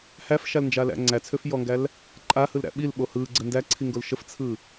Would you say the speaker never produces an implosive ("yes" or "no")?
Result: no